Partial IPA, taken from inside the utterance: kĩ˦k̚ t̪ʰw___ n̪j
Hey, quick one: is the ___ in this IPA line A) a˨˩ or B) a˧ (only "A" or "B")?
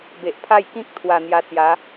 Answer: A